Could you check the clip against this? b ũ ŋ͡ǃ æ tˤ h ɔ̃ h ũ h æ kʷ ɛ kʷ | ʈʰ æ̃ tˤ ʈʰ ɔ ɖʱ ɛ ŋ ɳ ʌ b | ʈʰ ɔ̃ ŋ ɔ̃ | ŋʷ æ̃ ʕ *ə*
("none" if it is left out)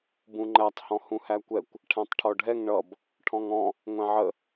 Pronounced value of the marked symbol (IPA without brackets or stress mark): ə